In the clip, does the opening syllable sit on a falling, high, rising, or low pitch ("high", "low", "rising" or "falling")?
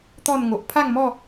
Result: falling